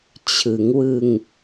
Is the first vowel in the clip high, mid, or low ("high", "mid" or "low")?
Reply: high